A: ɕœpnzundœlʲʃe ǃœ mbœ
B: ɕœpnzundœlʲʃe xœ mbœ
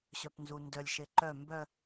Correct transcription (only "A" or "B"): A